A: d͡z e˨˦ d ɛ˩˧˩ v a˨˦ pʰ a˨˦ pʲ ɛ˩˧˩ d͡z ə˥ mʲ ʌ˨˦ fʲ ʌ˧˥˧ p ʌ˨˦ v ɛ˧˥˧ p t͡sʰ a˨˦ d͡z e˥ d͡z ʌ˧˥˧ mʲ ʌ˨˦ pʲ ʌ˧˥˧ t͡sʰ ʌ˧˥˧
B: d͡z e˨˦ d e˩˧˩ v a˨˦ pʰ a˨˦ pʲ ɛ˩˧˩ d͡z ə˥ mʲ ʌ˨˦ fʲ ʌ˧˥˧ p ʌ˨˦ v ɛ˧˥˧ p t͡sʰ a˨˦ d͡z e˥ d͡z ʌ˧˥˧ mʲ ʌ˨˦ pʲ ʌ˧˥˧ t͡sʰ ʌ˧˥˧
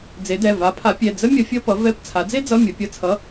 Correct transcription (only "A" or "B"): A